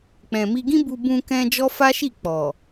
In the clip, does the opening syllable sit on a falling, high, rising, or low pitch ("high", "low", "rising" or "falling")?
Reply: low